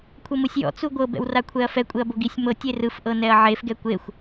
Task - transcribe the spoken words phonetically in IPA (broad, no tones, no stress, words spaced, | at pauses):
kʷʰɤmɯsʲjɔ̰ t͡suɡʷɤ bɛ̰wrakʷʰɛɐ̯fɛ kʷʼeɐ̯boɡisʲ mɤ tʲerɯf ʔɤnɛɐ̯ʕef ɡɛkʷexʷ